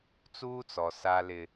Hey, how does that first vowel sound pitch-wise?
high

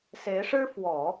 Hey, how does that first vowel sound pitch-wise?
rising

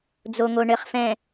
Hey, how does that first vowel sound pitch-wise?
low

